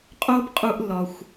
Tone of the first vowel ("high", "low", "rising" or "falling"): high